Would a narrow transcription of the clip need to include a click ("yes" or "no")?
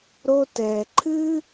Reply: yes